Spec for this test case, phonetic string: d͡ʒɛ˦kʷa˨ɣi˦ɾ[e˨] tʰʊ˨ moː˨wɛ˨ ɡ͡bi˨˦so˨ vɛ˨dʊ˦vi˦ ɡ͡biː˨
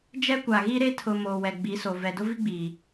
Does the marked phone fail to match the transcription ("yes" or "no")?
yes